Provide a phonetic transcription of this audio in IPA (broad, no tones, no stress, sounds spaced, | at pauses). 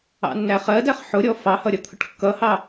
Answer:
ɑ̰ nː æ χ ɜ d æ χ ħ ʊ ɾʲ ɔ f ɑ h ʌ ɾʲ ʌ t̪ʰ ʊ ʈ kː ʌ h ɑ